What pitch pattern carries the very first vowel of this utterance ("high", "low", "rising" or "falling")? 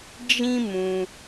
high